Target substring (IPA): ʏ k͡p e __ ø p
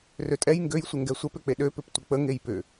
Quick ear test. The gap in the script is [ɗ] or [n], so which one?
ɗ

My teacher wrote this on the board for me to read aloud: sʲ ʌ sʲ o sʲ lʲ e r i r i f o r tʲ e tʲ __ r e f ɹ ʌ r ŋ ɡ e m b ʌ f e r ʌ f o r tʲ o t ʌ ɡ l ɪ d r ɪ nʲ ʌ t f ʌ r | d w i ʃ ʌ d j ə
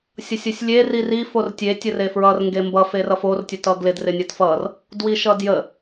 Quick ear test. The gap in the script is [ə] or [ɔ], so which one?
ə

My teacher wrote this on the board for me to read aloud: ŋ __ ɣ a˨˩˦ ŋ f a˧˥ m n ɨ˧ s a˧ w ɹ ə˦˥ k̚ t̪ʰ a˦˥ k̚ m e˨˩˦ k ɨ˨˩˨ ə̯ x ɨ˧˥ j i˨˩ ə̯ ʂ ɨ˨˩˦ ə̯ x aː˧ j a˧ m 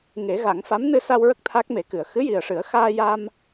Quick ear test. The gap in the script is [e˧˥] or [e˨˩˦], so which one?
e˨˩˦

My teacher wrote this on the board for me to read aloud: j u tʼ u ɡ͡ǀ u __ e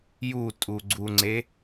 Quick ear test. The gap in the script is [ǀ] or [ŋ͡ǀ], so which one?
ŋ͡ǀ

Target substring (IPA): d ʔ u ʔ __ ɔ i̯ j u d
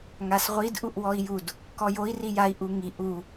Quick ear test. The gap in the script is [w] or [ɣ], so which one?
w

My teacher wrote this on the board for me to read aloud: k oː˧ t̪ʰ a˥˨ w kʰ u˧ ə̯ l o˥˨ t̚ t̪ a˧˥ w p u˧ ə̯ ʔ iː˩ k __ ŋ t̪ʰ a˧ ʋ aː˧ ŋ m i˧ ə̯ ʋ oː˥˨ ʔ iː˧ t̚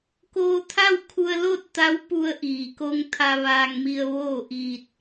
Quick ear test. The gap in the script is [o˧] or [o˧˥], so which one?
o˧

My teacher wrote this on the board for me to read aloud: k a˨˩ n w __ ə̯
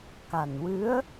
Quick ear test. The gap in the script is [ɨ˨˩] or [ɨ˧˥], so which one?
ɨ˧˥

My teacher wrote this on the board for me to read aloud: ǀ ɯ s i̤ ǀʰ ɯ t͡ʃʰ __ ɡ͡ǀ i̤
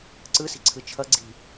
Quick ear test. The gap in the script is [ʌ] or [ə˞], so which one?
ʌ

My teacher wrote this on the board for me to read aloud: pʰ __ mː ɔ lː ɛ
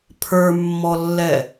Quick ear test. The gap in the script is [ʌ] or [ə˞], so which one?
ə˞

